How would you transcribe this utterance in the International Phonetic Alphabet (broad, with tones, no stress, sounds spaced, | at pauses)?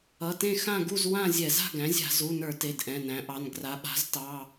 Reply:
ʌ˩˧˩ t ẽ˥˨ x ã˥˨ ɡ u˥˨ z w ã˥˨ zʲ ɛ˧˩˧ z a̤˥˨ ɡ æ̃˩˥ zʲ a̤˧˩˧ z u˩˧˩ n ə˞˧˩˧ t e˩˧˩ d ʔ ɛ̃˩˧˩ n æ̃˩˥ ʔ ɑ˩˧˩ n ɡ r a˩˧ ɓ a̤˩˥ z t ɑ˩˧˩